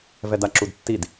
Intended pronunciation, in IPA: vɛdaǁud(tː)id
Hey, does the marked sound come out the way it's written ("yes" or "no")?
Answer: yes